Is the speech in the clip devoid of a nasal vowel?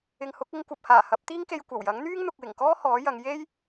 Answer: yes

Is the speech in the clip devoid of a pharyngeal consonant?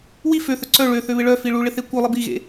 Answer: yes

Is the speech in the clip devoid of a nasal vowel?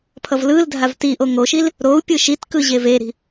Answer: yes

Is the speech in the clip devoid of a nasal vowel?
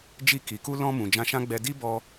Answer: no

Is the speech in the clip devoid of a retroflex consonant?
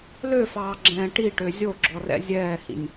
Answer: no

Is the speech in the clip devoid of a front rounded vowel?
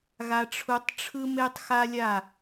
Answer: yes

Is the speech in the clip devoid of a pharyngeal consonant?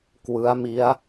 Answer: yes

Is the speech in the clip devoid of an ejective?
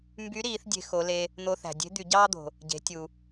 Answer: yes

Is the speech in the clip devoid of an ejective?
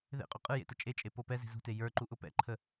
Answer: no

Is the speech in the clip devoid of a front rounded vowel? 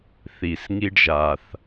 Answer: yes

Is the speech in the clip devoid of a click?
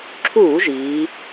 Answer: no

